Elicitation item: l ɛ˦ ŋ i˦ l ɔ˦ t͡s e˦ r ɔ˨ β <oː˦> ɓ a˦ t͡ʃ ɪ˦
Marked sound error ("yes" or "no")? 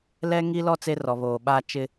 yes